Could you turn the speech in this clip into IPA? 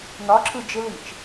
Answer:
nɒǁʰɯ d͡ʒɪlit͡ʃ

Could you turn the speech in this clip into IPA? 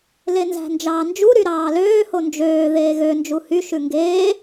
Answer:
lenzæ̤nd͡ʒɑːnd͡ʒu ɾyɾɑːløː hond͡ʒøː ðeːɣø nd͡ʒuhy ʃʉŋɡeː

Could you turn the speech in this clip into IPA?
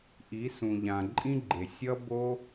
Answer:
ʔi˨˦sũ˨ʎã˨ ǃʼĩ˦ɡ͡ǃe˨ sʲʌ˦bo˦

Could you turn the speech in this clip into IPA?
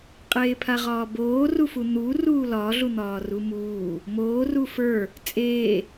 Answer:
qʼeːpʰaʁɒːboː rufun̪u ruːlɒ ɮun̪ɒːrumuː | moː rufə˞ | t͡sʼeː

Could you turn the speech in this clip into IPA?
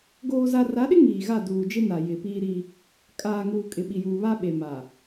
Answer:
ɡoː˦za˦ ra˨˦ɗɪ˦ ŋiː˨ɣa˦˨ duː˨d͡ʒɪ˦ na˨jɪ˨piː˦ɾi˦ | kʼaː˨ŋuː˨ kʼɪ˨ɓi˨juː˨ βa˦ɓe˨ma˨

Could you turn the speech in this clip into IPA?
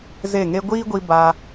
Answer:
ze˦˨ŋe˦ ɡʷiː˦ɡʷi˧ ba˧

